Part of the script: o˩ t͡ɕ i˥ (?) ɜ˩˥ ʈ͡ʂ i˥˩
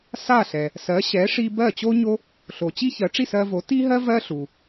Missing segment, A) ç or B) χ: A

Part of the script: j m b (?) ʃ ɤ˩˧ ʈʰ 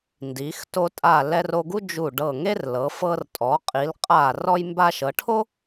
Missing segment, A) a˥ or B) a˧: B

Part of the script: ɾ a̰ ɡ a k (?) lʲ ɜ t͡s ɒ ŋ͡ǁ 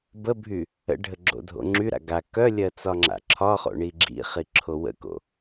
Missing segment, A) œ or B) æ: A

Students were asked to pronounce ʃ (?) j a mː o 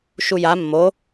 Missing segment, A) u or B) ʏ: A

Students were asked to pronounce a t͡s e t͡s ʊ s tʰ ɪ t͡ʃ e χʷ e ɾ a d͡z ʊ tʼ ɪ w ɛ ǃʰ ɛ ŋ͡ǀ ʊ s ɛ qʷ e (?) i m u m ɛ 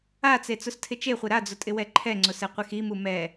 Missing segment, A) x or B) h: A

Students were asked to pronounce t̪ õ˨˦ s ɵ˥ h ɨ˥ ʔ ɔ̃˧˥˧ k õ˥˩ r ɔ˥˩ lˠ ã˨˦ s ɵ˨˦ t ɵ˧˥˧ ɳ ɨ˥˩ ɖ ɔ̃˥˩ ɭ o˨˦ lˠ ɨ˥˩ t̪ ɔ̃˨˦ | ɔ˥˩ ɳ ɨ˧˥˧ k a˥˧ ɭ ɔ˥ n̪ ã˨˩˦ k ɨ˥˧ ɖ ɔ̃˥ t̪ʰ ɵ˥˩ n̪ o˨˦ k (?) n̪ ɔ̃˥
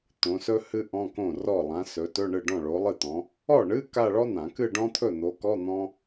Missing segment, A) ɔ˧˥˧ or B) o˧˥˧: A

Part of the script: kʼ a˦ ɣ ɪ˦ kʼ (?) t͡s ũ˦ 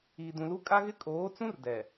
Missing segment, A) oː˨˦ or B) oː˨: A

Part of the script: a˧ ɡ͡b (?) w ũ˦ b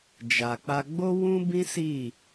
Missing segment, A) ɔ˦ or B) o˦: B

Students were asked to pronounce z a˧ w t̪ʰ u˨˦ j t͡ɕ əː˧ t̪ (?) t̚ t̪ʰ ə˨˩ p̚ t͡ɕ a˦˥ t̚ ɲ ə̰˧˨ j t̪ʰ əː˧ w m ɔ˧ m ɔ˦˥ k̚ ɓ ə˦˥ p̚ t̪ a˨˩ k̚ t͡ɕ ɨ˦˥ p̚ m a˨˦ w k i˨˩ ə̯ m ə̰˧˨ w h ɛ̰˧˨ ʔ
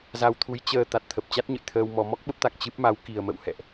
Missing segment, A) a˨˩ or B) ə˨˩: A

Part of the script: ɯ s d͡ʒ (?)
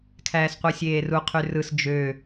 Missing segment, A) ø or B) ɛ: A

